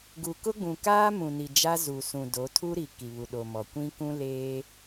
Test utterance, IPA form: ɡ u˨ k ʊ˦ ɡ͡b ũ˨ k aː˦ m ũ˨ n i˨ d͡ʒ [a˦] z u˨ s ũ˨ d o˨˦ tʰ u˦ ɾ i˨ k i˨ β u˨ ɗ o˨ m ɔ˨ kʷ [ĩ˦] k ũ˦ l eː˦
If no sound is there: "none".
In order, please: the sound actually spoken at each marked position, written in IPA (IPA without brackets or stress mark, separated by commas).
a˦, ĩ˦